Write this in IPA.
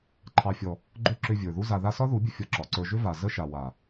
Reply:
ǃʰɑ˨fʲɔ˨ | ɡ͡ǃʏ˧ ǁʏ˧ vʲə˞˨ðu˦za˧ða˦ sɒ˦ðu˨˦bʲə˧ fʲɒ˧ǁɒ˨ǀə˞˧ ʒʏ˦va˨ zə˦ʃa˨ wa˨

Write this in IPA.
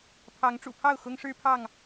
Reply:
pʰɑ˨˦ŋ ʈ͡ʂṵ˨˩pʰɑ˥˨ʊ̯ xʊ˦ŋʂɻ̩˦pʰɑ˥˨ŋ

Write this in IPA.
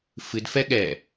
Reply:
fɨdfɛ ɠɛ

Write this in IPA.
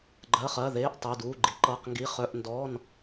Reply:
ɡ͡ǃɜ˧˥˧χɜ˧˥˧ðeː˧˥˧ʔ tˤi˧˥˧duː˧˥˧ɡ͡ǃi˨˥ ǃɤ˧˥˧qŋɡi˧˥˧ χœ˧˥˧ʔndɔː˧˥˧n

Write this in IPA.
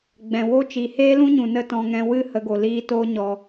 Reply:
ɡ͡bɛ̃˨ wo˦ t͡ʃiː˨heː˦lũ˦ɲũ˨ nə˦tɔ̃˧ŋɛ̃˧ wɨ˦ hə˨˦ɡo˨liː˧ to˦ɲɔ˨

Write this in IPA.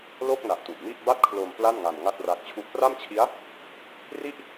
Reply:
lo˥˩k̚na˨˩ʔ tu˨˩ʔmi˥˩ʔ ba˥˩t̚kʰlo˧m pla˥˩nŋa˧n ŋa˥˩t̚ra˦˥k̚t͡ɕʰu˥˩ʔ pra˥˩mt͡ɕʰi˦˥a̯ | ri˥˩ʔ

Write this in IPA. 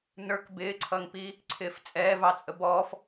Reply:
nə˞k bɪːǀʰʌːŋpiː | ǀʰɪːft͡sʼɛːvɑt͡sʼə bɔːf

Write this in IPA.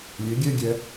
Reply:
lʲe˨˦ɡʲɛ˦ɡʲɛ˧

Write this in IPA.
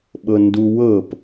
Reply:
ɓɤnduwɤp

